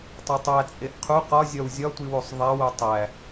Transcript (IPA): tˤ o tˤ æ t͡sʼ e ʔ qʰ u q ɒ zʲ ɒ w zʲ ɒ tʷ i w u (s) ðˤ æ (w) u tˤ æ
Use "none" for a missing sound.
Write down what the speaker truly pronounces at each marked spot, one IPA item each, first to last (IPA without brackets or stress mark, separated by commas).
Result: sˤ, w